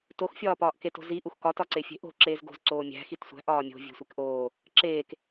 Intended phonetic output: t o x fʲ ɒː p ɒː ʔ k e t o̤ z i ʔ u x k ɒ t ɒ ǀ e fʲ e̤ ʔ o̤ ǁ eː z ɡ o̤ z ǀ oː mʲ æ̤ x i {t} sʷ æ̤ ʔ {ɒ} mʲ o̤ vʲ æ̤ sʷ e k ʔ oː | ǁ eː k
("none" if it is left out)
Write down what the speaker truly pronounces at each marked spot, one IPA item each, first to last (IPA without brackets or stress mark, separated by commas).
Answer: t, ɒː